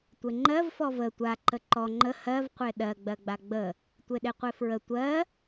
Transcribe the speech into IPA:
tʷ e ŋ͡ǃ ɜ v f ɔ v ə tʷ a ǃ ə ǃ ɔ ŋ͡ǃ ə h ɜ v qʷ e ɗ ɜ ɡ͡b ɜ ɡ͡b a ɡ͡b ə | tʷ e ɗ e qʷ e f ɹ ə tʷ ɜ

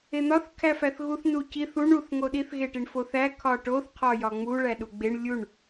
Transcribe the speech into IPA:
e n̪ ɒ θ kʰ æ f æ θ ɣ u θ n u c i θ u ɳ u θ ŋ o ɗ i θ ɣ e ʈ i ɳ f o θ æ kʰ ɒ ʈ o θ qʰ ɒ j ɒ ŋ͡m u ɭ æ ɗ u ɡ͡b e ɳ lʲ u ɳ

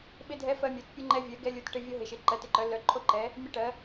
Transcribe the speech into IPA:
ɓ ɪ˧ dʱ ɛ˧ f ɜ˧ mʲ o˩˧ t pʲ u˧ ŋ͡ǃ ɛ˧ vʲ ɜ˩˧ ɡ ɛ˧ lʲ u˩˧ t ʈ ɪ˧ vʲ o˧ ɦ ɪ˩˧ ʃ ɪ˩˧ ǃ ɜ˩˧ t ɪ˧ ǃ œ˩˧ lː œ˩˧ ǃʰ o˧ ǃ ɛ˩˧ | mʲ ɛ˧ ʈ ɜ˩˧

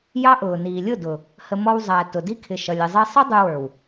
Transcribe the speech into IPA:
j ɑ˦ ʔ ʊː˨ n iː˨ lʲ ʊ˦˨ d ʊ˨ | h ə˧ m ɔ˧ w zˤ æ˨ t ʊ˨ d i˦ kʰ ɪ˨ ʃ ʌ˨ lʲ ɪ˨ zˤ i˧ sˤ ʌ˦ dˤ u˧ w ə˞˨ w

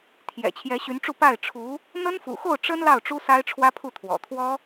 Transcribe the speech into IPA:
t̪ʰ j ɛ̰˨˩ t͡ɕʰ j ɛ˧˥ ɕ y˧˥ n ʈ͡ʂ u˥˧ p a˥˩ ɪ̯ ʈ͡ʂʰ u˧˥ | n̪ ə˥ n f ṵ˨˩ x o˥˩ ʊ̯ ʈ͡ʂ ə˥ n l ɑ˥˩ ʊ̯ ʈ͡ʂ u˥ s a˥ ɪ̯ ʈ͡ʂʰ w ä˥ pʰ u˥˩ t̪ʰ w ɔ̰˨˩ t̪ʰ w ɔ˥

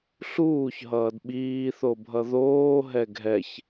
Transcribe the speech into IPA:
ɬ uː ç ɦ ʌː d ɓ iː θ o bʱ ʌ ð oː ɦ ɛ ɡʱ ɛ ç

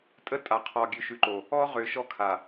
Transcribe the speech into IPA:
tʼ ə˦ tʼ a˨ qʰ ɔ˨ ɡʲ ʉ˨ ʃ ʉ˨ ǃ o˨ | ɔ˦ ʁ ʏ˨ ʃ ɔ˦ kʰ a˨

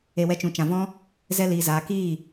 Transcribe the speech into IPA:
e˧ w ɛ˦ t͡ʃ ũ˨ t͡ʃ ã˨ v ɔ̃˦ | z ɛ˧ l iː˨ z aː˨ k iː˦˨

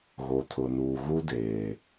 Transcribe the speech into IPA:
ɣ o˨ tʰ ʊ˨ n uː˨ ɣ u˦ d eː˨

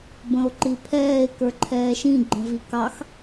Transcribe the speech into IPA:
b ə̃ o̯ ǃ i pʰ ɛː e̯ k ə˞ ǃʰ ɛː ʃ ĩ ɡ͡ǃ ə̃ v i k ɑ x

